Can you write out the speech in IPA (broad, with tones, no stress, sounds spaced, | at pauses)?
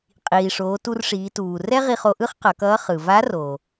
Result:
qʼ iː˩ ʂ oː˩˧ t u˧ r ʂ iː˩˧ t uː˩ r ɛ˥ ʁ i˧ χ o˧ ʔ ɯ˥ χ q ʌ˩˧ k ʌː˧˥ χ ɯ˩ v a˧˥ r o˩